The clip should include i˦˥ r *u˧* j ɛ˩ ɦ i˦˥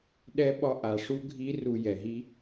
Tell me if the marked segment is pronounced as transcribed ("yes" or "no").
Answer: yes